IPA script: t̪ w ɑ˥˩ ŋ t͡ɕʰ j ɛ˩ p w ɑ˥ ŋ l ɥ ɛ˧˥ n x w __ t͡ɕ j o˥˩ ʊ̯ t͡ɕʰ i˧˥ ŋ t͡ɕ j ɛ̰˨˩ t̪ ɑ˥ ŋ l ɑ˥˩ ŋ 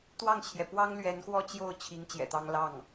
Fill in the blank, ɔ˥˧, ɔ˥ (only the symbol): ɔ˥˧